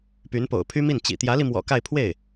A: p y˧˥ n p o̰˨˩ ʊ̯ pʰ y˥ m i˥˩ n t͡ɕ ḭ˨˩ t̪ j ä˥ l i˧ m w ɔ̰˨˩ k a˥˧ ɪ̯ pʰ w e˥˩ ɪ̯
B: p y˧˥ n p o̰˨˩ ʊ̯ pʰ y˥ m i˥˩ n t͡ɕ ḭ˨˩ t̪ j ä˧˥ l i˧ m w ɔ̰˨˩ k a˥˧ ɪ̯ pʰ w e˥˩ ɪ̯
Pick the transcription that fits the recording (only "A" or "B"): B